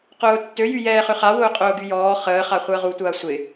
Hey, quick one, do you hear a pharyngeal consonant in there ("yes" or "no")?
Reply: no